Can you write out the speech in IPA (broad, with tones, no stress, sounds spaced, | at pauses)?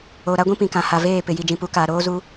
o˨ ɾ a˦ ɡʷ ĩ˦ p ĩ˨ k ã˨ h a˨ v eː˦˨ p ɪ˨ j i˨ d͡ʒ ĩ˨ p u˨˦ k aː˨ ɾ oː˦ z u˦